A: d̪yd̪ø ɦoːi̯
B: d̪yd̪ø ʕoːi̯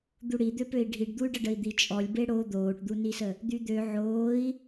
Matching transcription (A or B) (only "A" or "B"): B